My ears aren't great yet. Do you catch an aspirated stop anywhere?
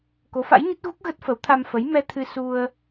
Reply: yes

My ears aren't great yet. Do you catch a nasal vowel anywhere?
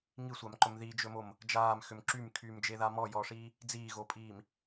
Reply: no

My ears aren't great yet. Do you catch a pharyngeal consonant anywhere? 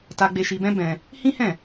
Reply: no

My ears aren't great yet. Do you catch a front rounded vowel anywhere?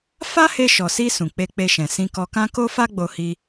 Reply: no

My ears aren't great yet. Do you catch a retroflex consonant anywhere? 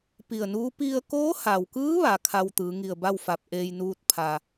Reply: no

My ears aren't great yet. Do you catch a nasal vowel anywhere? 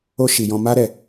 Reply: yes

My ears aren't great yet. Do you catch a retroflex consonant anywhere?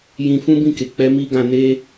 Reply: no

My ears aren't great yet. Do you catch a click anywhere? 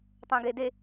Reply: no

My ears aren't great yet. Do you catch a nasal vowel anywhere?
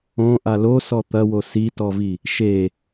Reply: yes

